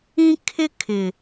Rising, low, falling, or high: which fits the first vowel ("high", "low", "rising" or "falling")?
high